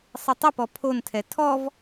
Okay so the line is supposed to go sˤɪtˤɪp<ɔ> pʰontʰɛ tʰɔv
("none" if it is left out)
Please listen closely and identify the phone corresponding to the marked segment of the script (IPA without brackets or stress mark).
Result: ɔ